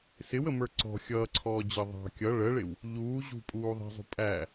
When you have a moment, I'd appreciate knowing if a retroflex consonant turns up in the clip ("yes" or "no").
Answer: yes